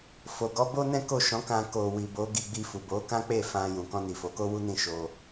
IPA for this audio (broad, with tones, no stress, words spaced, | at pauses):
fo˨ɡɔ˨˦bo˦ nɛ̃˦ ko˦˨ʃɔ̃˨˦kã˧ ko˨wi˨ bo˨˦ ɡi˧ɡ͡bi˧fu˨ bo˨˦ kã˦k͡pe˦˨ fã˧ jũ˨kɔ̃˧ni˨ fo˨˦ko˦wu˦nĩ˦˨ ʃo˧